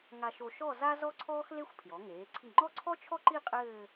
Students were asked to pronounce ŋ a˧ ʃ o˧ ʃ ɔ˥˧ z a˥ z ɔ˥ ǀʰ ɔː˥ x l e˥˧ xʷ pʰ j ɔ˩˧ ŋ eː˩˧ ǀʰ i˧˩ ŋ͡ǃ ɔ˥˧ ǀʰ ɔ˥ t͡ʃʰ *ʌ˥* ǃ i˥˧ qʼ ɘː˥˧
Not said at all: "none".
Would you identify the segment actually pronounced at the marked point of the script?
ɔ˥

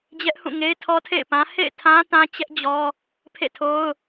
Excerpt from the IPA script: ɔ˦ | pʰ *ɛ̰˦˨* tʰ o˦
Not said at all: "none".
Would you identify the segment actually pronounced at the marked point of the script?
ḛ˦˨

